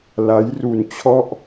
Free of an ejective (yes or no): yes